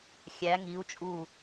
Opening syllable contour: rising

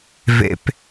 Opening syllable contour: high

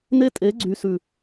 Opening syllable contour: high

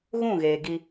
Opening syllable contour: falling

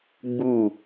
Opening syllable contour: falling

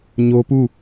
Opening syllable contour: high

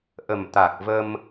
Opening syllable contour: low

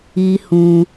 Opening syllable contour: high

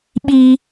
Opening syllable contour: high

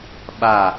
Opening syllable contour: falling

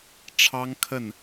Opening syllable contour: high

